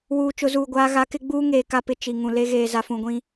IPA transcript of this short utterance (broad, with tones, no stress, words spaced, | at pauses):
wuː˨t͡ʃʊ˨˦zuː˨ɡʷaː˦ ɣa˨˦kɪ˦ ɡ͡buː˦ ŋeː˨ka˦ pɪ˨ t͡ʃi˨ŋũ˨le˦ ɣeː˨za˨fũ˨ɡʷĩ˦